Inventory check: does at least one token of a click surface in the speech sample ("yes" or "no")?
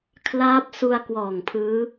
no